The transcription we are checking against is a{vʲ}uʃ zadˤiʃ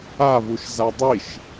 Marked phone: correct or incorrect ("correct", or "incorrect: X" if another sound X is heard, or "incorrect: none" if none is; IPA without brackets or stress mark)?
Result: incorrect: v